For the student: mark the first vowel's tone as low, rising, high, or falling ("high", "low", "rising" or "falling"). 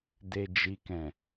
low